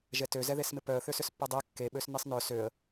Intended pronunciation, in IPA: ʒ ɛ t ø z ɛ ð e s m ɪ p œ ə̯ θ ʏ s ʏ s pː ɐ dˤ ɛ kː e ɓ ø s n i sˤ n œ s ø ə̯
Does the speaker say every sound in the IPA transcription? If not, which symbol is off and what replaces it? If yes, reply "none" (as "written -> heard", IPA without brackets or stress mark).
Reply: none